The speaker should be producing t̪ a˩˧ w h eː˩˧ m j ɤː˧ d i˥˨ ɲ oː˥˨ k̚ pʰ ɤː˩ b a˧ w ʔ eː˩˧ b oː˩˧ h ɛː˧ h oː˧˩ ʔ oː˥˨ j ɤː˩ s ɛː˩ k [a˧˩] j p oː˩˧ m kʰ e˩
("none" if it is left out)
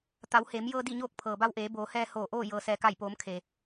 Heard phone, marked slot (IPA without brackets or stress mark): a˧˩